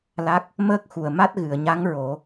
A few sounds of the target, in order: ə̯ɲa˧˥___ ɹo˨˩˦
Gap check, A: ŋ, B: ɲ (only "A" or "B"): A